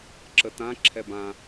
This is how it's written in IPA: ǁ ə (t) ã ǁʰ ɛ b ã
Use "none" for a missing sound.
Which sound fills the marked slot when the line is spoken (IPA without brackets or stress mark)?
t